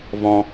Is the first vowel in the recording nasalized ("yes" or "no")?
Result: yes